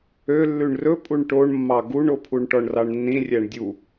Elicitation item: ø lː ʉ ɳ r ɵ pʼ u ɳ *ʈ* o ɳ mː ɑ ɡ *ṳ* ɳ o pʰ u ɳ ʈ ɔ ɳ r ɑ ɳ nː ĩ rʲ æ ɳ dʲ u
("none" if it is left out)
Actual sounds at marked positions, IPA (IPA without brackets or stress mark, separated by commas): ʈ, u